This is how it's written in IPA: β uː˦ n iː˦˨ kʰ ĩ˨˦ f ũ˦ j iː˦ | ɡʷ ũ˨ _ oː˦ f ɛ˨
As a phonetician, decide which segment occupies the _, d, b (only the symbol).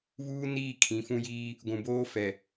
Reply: b